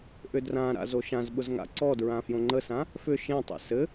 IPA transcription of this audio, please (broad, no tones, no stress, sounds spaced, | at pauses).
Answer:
ʔ ʏ d r ã ɾ a̰ z o ʃ ã z ɓ ʊ z ŋ a̰ ǀ ɔ d ɹ ã f j õ ŋ͡ǃ ə s ã | f ʏ ʃ ẽ tˤ ɛ̰ s ɘ